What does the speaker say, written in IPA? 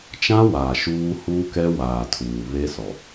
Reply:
t͡ʃ ã˦ w aː˨ ʃ uː˦ h uː˦ k ɛ˦ w aː˨ tʰ uː˨ β e˦ s ɔ˨

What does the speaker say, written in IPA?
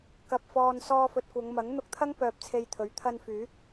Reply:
k ɐ˨ p̚ f ɔː˨ n s ɔː˧ f ɵ˨ t̚ kʷ ɐ˨˧ ŋ m ɐ˨˥ ŋ n̪ ʊ˧ k̚ t̪ʰ ɐ˥ ŋ p œː˧ p̚ t͡sʰ e˧ j t̪ʰ ɵ˨˥ ɥ t̪ʰ ɐ˧ n f yː˨˥ k̚

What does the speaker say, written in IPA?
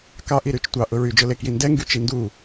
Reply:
k ɑ ʔ i ɾ y t͡ʃ tʷ ɑ ʔ ʊ ɹ y d͡ʒ ʊ l e k j i n d ɛ ŋ ɡ y t͡ʃ i n d u

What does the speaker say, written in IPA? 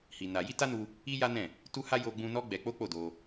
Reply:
h i˧ n a˧ j i˦ t a˦ n u˧ | i˦ j a˦ n ɛ̃˦˨ | t u˦ h a˦ j o˧ ɡ͡b ũ˧ n ɔ˦ ɡ͡b ɛ˧ k͡p o˦ k͡p o˦˨ d o˧

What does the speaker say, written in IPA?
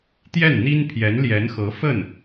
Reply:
t̪ j ɛ˥˩ n n̪ i˥ n pʰ j ɛ˧˥ n l j ɛ˧˥ n x ɤ˧˥ f ə˥˩ n

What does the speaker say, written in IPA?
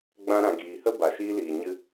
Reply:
ɡ͡b ã˧ ɾ ã˨ ɡ iː˨ h ə˦ b a˨ ʃ iː˧ l iː˨ ɲ ɨ˧

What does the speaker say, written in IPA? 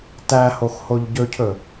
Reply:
t æ h o x h o ʎ ɟ ɵ cʰ ɵ

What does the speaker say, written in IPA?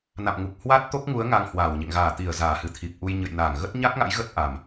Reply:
n a̰˧˨ m ŋ u˨˩ k̚ h w a˦˥ t̚ t̪ o˦˥ k̚ ŋ u˨˦ ə̯ ŋ a˧ ŋ h w aː˧˩ w ɲ ḛ˧˨ ŋ ɣ aː˧˩ t̪ i˧˩ ə̯ z aː˧˩ h ɨ˧˩ t̪ʰ i˨˩ p̚ ʔ u˧ j ɲ ə̰˧˨ j n aː˧˩ ŋ ɣ ə˦˥ t̚ ɲ a˦˥ k̚ ŋ a̰˧˥ j ɣ ə˦˥ t̚ ʔ a˨˩ m

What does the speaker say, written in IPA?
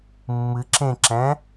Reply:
mː ɨ ǁ ẽ ǁ ɛ̃

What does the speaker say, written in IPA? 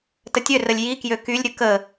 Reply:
t ə tʲ ø r ə lʲ j i k j ø k y lʲ ɾʲ ə k ə

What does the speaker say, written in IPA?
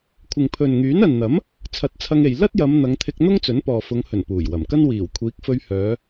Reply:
kʷʰ ɪ˨ ŋ pʰ ɵ˨ n ŋ yː˨˥ n ɐ˨ n n̪ ɐ˨˥ m | t͡sʰ ɐ˨˥ t̚ t͡sʰ ɐ˧ ŋ e˨ j l ɐ˥ t̚ j ɐ˨˧ m n̪ ɐ˨˧ ŋ t̪ʰ ɪ˧ k̚ n̪ ʊ˥ ŋ t͡s ɵ˨˥ n p ɔː˨ f ʊ˨˧ ŋ h ɵ˨˩ n p uː˨˩ j w ɐ˨˩ m k ɐ˥ n w iː˨˩ w kʷʰ iː˨˥ k̚ f ɵ˧ ɥ h œː˨˧

